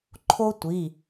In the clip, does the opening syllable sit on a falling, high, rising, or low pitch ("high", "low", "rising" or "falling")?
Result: high